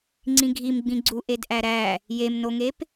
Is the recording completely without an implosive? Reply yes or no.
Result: yes